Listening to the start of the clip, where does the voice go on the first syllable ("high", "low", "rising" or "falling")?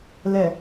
low